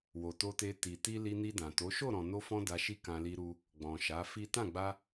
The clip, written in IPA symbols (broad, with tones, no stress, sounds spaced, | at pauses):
w o˨ t o˧ t e˧ t i˨ t i˧ l i˧ n i˧ d ã˨ t o˨˦ ʃ o˦˨ ɾ ɔ̃˨ n o˧ f ɔ̃˧ d a˧ ʃ i˦ k ã˧ l i˧ ɾ u˧ | ɡ͡b ɔ̃˨ ʃ a˨˦ f i˦ t ã˦˨ ɡ͡b a˧